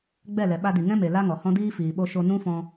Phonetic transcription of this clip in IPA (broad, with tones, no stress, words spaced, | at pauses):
ɡ͡bɛ˦˨lɛ˨ɓa˧ di˨ŋɛ̃˦me˨ la˦ŋɔ˨hɔ̃˦diː˦ fiː˨ɓo˧ʃo˧nũ˦ fɔ̃˧